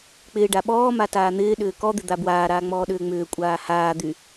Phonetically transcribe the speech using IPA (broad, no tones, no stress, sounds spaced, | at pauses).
k͡p ɪː ɖ a ɓ ɔː m a t aː n̪ ɪː ɗ ʏː k ɔ d̪ ɪ d̪ a b w aː ɾ aː ŋ͡m ɔː ɗ ʏː ŋ͡m ʏː kʷʼ aː h aː d̪ y